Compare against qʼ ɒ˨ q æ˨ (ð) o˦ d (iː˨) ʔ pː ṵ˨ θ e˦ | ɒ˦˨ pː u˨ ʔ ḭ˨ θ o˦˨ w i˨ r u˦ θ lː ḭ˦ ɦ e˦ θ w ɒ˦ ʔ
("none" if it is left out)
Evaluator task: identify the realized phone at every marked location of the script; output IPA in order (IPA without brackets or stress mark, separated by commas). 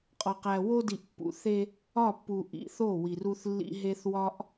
w, i˨